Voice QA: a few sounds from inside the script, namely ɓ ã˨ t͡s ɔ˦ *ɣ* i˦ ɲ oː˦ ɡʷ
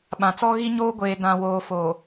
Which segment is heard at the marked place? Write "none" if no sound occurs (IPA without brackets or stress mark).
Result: ɣ